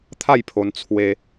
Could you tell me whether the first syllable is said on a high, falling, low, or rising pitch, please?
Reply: falling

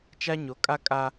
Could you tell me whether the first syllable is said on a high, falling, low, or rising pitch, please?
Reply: high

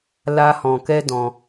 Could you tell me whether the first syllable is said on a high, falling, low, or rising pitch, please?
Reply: high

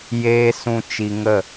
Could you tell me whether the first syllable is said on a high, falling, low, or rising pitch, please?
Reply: high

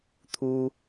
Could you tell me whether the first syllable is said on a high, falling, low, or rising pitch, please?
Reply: high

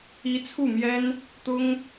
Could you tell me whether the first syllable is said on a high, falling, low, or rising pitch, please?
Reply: rising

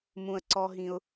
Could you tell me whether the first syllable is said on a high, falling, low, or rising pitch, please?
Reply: low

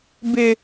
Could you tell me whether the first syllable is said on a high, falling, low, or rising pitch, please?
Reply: high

